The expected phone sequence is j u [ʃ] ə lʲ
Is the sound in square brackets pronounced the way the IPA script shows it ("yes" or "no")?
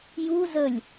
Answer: no